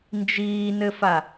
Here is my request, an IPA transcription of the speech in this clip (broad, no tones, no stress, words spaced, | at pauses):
nd͡ʒiːnɘfa